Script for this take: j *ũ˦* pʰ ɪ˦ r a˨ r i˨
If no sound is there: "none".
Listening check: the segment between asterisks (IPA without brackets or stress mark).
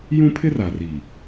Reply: ũ˦